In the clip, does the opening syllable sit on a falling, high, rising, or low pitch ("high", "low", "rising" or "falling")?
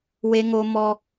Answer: high